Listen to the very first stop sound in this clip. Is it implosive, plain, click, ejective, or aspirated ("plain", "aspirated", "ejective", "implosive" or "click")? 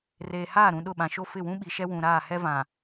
implosive